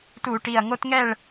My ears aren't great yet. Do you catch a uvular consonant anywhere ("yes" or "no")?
no